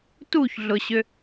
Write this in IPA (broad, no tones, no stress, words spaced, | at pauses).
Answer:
tuçɮʊɕʏ